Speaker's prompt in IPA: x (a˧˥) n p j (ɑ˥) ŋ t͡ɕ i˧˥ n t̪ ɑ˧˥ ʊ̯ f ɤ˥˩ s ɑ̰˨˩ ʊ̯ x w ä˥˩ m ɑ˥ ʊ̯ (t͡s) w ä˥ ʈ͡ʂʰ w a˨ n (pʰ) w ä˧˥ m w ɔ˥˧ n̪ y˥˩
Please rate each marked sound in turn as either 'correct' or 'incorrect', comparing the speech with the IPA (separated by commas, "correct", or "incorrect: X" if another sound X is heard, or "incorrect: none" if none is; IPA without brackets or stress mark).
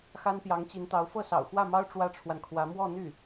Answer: incorrect: a˥, incorrect: ɑ˧˥, incorrect: ʈ͡ʂ, incorrect: kʰ